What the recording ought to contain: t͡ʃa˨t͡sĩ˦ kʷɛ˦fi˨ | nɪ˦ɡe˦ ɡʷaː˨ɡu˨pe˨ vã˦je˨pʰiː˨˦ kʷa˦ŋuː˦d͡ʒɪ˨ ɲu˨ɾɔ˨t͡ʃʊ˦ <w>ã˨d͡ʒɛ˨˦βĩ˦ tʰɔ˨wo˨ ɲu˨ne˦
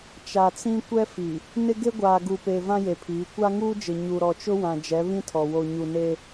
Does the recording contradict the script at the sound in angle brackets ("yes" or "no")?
no